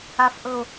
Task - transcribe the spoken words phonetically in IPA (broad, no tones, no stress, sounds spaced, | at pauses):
a f ʔ ɤ o̯